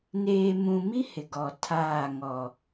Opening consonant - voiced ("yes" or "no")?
yes